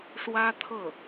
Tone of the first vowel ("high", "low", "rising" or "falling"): high